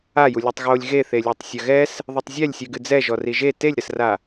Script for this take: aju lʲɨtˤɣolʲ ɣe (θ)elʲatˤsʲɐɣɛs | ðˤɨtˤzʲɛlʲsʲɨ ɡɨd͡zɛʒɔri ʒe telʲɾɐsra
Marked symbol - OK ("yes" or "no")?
yes